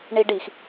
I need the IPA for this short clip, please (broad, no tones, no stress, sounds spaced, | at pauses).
ɳ i ɖ i x